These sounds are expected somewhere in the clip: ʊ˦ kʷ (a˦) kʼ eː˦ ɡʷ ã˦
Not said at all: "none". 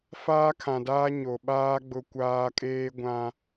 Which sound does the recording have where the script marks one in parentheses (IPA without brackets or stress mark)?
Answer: aː˦